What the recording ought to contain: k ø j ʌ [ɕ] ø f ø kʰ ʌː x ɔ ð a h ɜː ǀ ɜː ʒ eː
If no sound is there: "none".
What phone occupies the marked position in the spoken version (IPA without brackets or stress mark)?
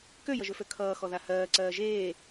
ʒ